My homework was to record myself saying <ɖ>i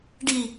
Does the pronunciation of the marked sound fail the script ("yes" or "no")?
no